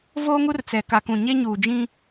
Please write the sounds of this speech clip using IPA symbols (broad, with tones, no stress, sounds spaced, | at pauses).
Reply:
v oː˦ ŋ u˦ r t͡s ɛ˨ k a˨ k ũ˨ ɲ e˦ ɲ uː˨ d͡ʒ ĩ˦